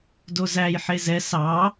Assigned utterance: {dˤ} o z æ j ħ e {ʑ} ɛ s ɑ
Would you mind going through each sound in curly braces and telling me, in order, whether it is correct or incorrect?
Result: incorrect, incorrect

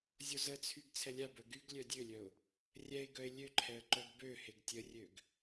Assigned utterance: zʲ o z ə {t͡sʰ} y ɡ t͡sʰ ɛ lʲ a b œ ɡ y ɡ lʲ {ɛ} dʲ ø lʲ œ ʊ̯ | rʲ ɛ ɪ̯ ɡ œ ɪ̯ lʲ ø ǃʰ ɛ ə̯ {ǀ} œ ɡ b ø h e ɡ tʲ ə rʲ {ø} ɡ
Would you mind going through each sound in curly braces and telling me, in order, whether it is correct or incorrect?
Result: correct, incorrect, incorrect, correct

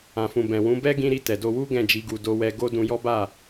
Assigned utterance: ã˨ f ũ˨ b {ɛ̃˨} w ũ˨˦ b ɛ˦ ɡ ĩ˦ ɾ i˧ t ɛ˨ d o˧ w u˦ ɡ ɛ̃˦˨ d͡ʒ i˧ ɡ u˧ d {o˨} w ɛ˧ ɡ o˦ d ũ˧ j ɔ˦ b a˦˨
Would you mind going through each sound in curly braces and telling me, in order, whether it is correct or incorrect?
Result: correct, incorrect

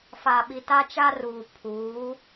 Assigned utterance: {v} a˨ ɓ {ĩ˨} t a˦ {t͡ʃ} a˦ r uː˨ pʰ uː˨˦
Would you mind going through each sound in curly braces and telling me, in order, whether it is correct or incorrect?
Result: incorrect, incorrect, correct

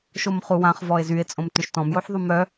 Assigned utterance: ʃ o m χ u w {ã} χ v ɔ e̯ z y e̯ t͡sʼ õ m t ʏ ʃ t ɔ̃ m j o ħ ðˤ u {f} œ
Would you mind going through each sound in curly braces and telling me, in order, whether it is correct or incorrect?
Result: correct, incorrect

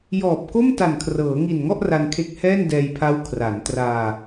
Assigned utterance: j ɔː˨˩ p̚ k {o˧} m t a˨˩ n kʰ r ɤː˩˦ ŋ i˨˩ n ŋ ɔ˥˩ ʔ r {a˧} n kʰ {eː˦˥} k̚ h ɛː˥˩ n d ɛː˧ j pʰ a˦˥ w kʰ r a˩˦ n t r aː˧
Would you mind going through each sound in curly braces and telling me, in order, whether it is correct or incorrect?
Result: incorrect, correct, incorrect

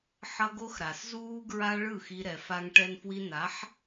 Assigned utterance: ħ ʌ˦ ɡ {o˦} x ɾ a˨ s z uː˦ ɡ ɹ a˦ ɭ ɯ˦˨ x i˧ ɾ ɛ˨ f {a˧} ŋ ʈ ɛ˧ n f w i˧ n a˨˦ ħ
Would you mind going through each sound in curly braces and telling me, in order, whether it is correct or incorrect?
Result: correct, correct

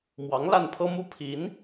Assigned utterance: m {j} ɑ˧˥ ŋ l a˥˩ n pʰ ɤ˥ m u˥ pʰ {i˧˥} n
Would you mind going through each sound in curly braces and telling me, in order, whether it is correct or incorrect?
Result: incorrect, correct

